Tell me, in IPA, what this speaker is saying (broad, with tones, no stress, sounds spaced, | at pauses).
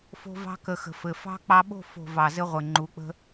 f o̤˧ v ɑ̤˧ k ə˨ x ə̤˨ f ɘ˨ f ɑ̤˧ k͡p ɑ˧ ɓ o̤˦˨ f o̤˨ v ɑ˨ z ɘ˧ ʁʷ ɘ˨ ŋ͡ǃ u˨˦ k͡p ə̤˧